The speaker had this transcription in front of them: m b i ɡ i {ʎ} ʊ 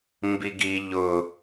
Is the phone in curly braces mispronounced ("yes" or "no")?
no